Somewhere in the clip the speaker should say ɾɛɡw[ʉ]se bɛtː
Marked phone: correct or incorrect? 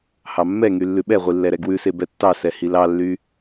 correct